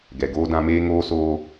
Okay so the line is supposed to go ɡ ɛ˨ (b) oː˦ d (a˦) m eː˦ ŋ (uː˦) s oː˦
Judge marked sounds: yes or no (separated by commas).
no, no, no